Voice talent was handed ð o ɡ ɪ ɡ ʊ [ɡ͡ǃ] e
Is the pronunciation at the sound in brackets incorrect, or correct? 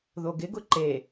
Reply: incorrect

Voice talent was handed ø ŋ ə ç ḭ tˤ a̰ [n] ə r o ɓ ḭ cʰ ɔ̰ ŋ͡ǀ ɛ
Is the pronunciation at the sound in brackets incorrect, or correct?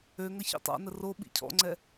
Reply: correct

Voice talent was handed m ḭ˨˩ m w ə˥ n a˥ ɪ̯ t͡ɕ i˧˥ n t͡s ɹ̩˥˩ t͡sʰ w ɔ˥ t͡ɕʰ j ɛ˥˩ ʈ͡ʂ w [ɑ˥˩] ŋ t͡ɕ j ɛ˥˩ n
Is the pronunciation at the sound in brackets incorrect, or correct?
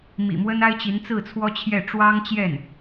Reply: incorrect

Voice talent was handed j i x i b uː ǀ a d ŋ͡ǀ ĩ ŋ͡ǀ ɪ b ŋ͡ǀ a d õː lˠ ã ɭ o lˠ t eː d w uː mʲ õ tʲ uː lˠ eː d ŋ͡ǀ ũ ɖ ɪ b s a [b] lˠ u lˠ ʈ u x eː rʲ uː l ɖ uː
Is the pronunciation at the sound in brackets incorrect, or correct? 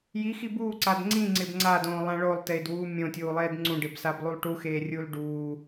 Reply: correct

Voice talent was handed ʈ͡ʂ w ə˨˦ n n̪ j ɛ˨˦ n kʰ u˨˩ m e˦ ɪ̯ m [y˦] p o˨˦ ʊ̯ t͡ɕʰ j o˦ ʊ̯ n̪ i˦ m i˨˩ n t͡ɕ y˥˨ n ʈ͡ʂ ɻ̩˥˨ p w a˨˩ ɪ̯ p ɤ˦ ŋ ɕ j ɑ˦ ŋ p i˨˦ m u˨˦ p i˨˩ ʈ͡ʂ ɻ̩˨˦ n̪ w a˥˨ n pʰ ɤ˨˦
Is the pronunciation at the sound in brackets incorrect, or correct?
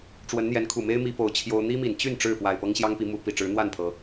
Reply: incorrect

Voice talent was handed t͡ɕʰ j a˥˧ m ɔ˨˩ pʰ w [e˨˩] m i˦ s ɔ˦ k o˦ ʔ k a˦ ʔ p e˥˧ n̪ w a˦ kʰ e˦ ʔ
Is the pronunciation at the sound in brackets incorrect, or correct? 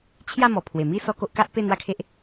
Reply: correct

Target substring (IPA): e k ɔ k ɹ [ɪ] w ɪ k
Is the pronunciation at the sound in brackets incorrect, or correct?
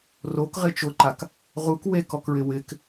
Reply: correct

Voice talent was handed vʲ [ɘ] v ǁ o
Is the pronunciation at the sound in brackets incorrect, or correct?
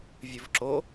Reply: correct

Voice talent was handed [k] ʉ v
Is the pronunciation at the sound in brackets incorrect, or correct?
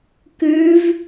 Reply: correct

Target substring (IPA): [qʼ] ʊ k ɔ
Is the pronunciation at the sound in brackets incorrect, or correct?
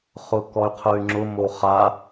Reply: incorrect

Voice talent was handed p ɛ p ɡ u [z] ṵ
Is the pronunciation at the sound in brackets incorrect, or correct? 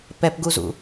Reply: correct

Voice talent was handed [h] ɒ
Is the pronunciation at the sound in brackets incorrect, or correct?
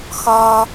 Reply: incorrect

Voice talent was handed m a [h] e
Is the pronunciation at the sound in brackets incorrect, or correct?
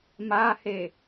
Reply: correct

